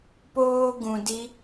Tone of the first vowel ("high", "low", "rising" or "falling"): high